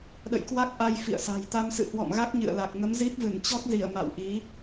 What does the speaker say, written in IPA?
ɗə̰˧˨jkwa˦˥k̚ʔa˧j fḭ˧˨ə̯sa̤˨˩j t̪a˧msɨ̰˧˨hwɔ̰˧˨mɣa˦˥k̚ ɲɨ̰˧˨ə̯la˨˩k̚ ŋə˨˦mzi˦˥p̚vɨ˧˩n t͡ɕɔ˦˥k̚zi˧˩ə̯ ma̰˧˨wʔi˨˦

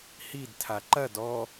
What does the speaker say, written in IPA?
hidtʰa ǃɐd ɔ

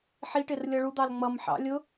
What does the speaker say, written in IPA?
ħiʈɪrlʲʌ ɭud̪ɑl ŋ͡mʌmħɑ̰ lʲʊ

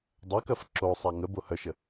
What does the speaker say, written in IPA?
dˤɐkɐf ǁo sˤaŋəbo hœʃə

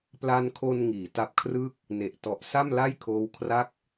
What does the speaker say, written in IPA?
pla˧nkʰo˧n ŋiː˩˦ ta˦˥p̚kʰrɯ˥˩k̚ | ne˨˩ʔtɔ˨˩ʔ sa˥˩mla˥˩jkʰoː˦˥w kʰra˦˥k̚

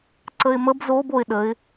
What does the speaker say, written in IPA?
ǀəɪ̯məb zob oɪ̯ ɗəɪ̯

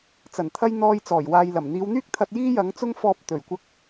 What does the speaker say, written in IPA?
t͡sɐ˨˩nt̪ʰɐ˥j n̪ɔː˥j t͡sɔː˨˩jwaː˨jlɐ˨˩m n̪iː˨˧wn̪yː˥k̚t̪ʰɐ˧t̚ jiː˥jɐ˨˥ŋt͡sʊ˥ŋfɔː˧p̚ t̪ɵ˨˩ɥkʷɐ˧k̚

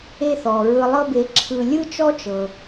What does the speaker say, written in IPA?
e˦θɔ˩ ɹɯ˨lˠɤ˦be˨ǁʰɯ˨ lʲɯ˥t͡ʃɔ˥t͡ʃɤ˩

